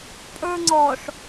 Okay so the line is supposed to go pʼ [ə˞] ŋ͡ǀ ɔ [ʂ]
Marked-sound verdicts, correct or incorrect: correct, correct

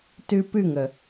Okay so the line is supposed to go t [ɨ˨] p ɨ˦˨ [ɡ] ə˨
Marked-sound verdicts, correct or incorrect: incorrect: ɨ˦, incorrect: ŋ

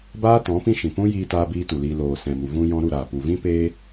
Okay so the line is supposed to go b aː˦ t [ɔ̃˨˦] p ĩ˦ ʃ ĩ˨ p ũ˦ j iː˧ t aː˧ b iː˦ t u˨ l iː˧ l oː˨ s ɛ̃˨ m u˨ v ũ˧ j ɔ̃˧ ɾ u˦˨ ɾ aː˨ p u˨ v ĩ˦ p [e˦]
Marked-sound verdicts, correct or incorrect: correct, incorrect: eː˦

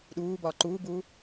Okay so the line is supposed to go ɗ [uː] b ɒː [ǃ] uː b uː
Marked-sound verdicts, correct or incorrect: correct, correct

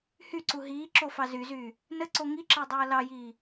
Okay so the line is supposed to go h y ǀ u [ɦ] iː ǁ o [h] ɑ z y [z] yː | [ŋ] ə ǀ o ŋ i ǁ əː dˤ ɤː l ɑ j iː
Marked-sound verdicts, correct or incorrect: correct, incorrect: f, correct, incorrect: n

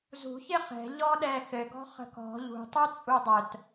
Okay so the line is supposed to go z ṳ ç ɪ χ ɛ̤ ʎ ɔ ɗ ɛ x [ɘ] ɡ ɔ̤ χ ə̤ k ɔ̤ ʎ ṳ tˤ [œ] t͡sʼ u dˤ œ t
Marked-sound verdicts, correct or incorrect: correct, correct

